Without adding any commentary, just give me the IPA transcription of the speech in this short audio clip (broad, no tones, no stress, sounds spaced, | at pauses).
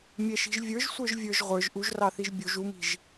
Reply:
mʲ ɛ ʃ i̤ ʒ vʲ ə˞ ʒ sʷ ə˞ ʒ vʲ ə˞ ʒ ʁʷ ə˞ ʒ ʔ u ʒ r ɑ θ i ʒ bʲ u ʒ u m i̤ ʒ